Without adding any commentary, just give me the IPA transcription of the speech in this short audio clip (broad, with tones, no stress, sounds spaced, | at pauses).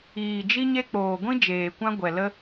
iː˨ d͡ʒ i˦ ɲ e˦ k͡p oː˨ ɡʷ ĩ˦ d͡ʒ eː˨ kʷ ã˦ ɡʷ ɛ˨ l ə˦